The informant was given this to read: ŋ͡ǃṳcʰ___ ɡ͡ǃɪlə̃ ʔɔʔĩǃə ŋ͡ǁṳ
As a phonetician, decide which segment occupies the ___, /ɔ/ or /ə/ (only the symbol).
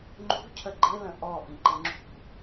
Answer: ə